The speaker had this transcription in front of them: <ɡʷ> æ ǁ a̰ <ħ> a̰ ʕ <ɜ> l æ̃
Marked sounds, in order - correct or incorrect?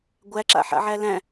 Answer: correct, correct, incorrect: æ

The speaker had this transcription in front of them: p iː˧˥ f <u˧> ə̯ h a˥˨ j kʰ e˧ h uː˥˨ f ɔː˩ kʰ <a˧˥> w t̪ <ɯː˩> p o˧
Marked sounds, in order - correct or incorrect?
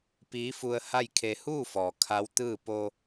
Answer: correct, correct, incorrect: ɯː˥˨

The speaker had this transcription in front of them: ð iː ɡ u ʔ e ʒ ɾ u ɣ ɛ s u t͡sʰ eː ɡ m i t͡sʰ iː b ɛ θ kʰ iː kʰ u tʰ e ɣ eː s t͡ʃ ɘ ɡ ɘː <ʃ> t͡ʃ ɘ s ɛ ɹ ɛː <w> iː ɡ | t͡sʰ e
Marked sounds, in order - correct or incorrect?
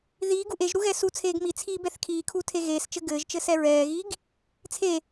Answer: incorrect: ʒ, incorrect: ɣ

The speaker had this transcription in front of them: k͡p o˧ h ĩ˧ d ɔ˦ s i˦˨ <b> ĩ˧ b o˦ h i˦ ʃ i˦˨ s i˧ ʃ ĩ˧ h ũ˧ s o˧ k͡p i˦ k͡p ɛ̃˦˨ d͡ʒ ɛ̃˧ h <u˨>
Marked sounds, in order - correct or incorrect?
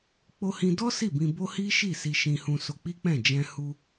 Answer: correct, incorrect: u˧

